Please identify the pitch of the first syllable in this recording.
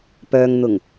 low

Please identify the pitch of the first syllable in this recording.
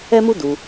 high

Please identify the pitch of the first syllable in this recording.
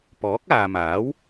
rising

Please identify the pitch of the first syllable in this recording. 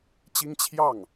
high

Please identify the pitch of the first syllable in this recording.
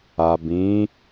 low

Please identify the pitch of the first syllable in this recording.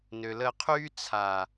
low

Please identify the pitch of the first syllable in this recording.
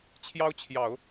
high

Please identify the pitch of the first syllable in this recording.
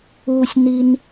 low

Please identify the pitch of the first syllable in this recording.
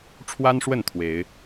high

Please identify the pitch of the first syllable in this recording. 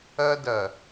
high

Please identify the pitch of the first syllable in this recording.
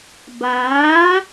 rising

